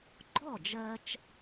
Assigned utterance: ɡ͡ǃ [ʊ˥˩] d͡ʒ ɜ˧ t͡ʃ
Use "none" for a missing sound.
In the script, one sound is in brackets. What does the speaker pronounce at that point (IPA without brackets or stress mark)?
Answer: ɔ˥˩